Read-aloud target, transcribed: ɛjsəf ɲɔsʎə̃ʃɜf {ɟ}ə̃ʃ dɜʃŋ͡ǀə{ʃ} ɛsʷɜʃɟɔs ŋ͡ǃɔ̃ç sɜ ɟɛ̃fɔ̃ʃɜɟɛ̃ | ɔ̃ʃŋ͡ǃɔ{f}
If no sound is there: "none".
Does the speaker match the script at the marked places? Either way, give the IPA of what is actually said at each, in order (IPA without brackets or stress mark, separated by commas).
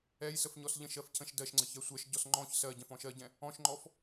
c, ç, f